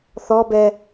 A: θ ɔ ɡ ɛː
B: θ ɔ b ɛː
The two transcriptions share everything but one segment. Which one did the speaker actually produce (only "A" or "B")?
B